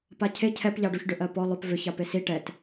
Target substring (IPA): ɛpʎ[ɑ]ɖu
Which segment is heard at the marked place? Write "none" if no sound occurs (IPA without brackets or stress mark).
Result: ɑ